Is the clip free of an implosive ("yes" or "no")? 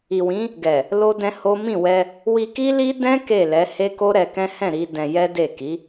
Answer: yes